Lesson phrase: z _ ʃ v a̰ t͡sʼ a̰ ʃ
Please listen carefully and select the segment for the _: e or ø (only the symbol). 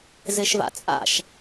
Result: e